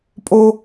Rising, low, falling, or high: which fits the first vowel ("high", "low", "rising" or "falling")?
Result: high